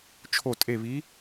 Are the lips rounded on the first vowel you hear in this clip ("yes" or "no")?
yes